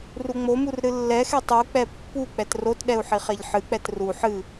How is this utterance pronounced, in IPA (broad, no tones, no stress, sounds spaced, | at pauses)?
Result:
r u ŋ͡m o m u r ɾ ɨ lː ɛ x e tˤ u k͡p ɛ pː u k͡p ɛ t r o t ɗ ɛ u̯ ħ i χ e ʎ ħ ɨ k͡p ɛ t r u ħ ɨ